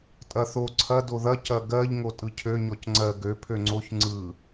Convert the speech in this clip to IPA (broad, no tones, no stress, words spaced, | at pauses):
tʼɐθo ǀʰɐ doðɐ cɐɡɜʎ ŋotʼɯcʰø ɲɔcŋ͡ǀɜ ɡø pʰøŋ͡ǀoç ŋ͡ǀɯ